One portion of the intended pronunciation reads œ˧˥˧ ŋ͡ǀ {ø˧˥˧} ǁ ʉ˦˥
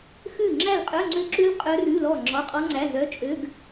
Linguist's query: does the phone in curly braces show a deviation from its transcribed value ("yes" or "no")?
yes